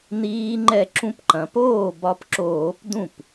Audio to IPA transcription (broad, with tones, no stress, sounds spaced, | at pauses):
n iː˦˥ ŋ͡ǃ ɛ˥˩ ǁ ũ˧ p ǃ ɐ̃˩˧ p oː˥˩ b ɒ˧ p ǁ oː˧˩˧ p d ũ˥˩ p